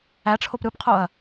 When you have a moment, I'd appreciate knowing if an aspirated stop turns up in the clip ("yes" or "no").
yes